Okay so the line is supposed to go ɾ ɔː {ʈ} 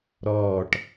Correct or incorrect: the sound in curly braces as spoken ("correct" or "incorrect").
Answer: correct